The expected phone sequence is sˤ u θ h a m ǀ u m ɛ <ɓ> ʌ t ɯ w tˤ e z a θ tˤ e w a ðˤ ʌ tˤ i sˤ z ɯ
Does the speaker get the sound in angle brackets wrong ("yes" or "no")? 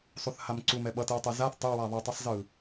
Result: no